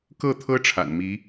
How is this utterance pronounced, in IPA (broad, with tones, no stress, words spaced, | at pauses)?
kɤ˥˩t̪ʰɤ˥ ʈ͡ʂʰa̰˨˩nmi˧˥